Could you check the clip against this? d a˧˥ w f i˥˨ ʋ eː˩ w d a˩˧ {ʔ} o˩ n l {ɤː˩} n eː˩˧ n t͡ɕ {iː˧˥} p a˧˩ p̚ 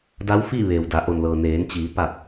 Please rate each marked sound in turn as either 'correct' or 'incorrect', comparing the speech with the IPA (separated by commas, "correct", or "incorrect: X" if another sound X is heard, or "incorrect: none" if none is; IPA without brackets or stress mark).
correct, correct, incorrect: iː˩˧